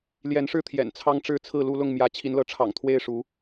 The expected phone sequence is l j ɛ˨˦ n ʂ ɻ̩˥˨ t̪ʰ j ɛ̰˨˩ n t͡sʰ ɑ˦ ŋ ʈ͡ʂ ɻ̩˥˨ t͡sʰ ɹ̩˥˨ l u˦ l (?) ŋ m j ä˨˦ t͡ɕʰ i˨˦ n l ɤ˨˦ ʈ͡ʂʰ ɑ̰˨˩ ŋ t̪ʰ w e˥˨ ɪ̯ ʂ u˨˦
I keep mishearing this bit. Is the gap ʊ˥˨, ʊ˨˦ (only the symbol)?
ʊ˥˨